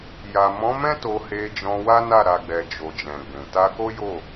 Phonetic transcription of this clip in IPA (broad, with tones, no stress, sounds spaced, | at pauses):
j a˨ m ɔ̃˨˦ m ɛ̃˦ t o˧ h e˧ d͡ʒ ɔ̃˧ w a˦ n a˦˨ ɾ a˨ ɡ͡b ɛ˨ d͡ʒ o˨ d͡ʒ ɛ̃˨ ɡ͡b ũ˨ t a˧ k o˦ j o˦˨